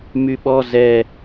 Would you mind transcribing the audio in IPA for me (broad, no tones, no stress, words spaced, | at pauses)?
myɓɔ zɛ